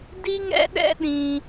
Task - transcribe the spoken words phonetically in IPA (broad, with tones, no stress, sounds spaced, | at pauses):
d i˥ ŋ ɛ̰˥ ɗ ɛ̰˥ ɗ ĩ˧